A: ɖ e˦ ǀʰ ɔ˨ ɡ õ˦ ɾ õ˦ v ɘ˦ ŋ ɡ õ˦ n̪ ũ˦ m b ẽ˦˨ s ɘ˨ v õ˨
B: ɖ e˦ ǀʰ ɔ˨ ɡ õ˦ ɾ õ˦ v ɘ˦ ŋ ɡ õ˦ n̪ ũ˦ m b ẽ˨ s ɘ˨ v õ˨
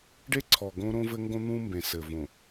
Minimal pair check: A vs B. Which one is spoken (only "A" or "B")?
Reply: B